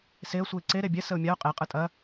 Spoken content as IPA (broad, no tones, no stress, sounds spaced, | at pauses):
s e ə̯ sʷ ɯ ɪ̯ ǀ e ɾ e bʲ ɛ s ə ʊ̯ mʲ a ʊ̯ qʼ e qʼ ɯ tʼ ɐ